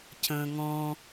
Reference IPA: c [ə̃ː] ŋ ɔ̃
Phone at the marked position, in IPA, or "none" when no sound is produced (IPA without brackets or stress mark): ə̃ː